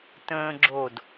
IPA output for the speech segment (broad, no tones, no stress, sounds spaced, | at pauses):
t ə̃ː ɡ͡ǁ o d